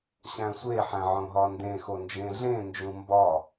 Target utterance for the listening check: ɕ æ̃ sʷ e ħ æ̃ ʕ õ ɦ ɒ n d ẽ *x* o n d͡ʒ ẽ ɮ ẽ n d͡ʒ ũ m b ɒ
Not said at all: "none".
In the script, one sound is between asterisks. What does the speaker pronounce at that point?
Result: x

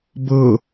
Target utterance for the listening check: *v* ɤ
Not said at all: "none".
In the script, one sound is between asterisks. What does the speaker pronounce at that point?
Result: b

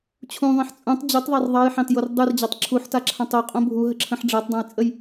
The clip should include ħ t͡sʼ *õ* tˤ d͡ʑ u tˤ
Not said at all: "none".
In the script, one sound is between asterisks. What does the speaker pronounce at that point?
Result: ũ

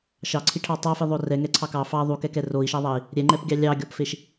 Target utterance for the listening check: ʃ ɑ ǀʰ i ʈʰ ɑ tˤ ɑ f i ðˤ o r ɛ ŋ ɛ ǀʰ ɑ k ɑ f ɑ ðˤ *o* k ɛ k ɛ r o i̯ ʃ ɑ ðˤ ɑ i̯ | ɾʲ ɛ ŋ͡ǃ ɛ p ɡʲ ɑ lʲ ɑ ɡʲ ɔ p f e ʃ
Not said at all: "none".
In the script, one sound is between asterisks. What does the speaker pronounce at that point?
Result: u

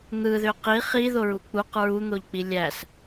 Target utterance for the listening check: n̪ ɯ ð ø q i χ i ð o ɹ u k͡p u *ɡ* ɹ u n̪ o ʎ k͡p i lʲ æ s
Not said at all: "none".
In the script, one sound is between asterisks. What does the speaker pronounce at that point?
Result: q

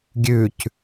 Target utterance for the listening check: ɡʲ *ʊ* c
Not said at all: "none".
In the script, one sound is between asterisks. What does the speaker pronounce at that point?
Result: ʉ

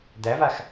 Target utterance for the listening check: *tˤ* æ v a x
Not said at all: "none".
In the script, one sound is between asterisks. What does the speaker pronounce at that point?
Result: d̪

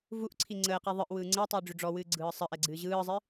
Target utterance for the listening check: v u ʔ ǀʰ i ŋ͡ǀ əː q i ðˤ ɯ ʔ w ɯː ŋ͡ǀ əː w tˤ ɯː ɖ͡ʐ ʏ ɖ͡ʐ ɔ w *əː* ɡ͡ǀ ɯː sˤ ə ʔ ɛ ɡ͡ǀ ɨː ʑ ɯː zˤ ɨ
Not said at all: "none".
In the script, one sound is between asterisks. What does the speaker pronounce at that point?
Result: ɨː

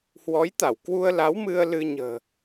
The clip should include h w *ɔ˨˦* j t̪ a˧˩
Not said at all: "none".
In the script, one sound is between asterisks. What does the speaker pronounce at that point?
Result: ɔ˨˦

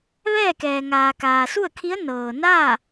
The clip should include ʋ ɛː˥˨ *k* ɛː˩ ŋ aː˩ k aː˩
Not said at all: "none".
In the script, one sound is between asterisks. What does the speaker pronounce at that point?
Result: k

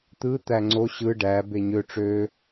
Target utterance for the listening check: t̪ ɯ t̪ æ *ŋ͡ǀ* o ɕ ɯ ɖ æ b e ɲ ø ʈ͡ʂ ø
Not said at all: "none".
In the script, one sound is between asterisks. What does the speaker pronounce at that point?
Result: ŋ͡ǀ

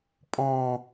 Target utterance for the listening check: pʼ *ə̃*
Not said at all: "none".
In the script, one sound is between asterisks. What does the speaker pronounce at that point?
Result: ɔ̃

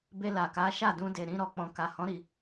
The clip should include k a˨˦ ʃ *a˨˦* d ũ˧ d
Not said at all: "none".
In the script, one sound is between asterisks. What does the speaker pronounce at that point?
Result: a˦˨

